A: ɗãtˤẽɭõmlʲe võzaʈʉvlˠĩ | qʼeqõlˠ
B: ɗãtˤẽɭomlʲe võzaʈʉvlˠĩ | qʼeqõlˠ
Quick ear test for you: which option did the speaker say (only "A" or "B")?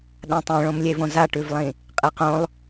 A